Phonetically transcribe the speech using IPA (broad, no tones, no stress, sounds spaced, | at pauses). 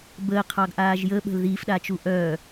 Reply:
b əː qʰ ɑ ɡ ʔ aː ʒ j ə ɓ ə̤ l ð iː f ɗ a t͡ʃ u ʔ œ